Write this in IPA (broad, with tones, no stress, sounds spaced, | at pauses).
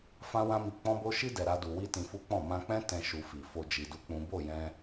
f ã˦ w ã˦ m i˧ k͡p ɔ̃˦ b o˦ ʃ i˦ d ɛ˧ ɾ a˦ d u˧ w i˦ t ĩ˧ f u˦ k͡p ɔ̃˦˨ m ã˧ k͡p ɛ̃˦ t ɛ̃˧ ʃ u˧ f i˨ f o˨ d͡ʒ i˧ d u˦ k͡p ũ˦ b o˦˨ j ɛ̃˧